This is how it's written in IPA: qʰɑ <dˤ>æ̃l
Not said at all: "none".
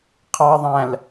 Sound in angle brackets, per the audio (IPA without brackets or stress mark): ðˤ